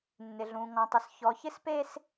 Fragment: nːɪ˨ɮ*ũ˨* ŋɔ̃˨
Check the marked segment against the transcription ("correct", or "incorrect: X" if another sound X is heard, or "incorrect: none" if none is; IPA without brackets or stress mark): correct